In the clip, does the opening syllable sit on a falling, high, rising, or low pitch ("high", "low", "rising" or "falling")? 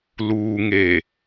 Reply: low